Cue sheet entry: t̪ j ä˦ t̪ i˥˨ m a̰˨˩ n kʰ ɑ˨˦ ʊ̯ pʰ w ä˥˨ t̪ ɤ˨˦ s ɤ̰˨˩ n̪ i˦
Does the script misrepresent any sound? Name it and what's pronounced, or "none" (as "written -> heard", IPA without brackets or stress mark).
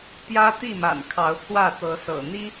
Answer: none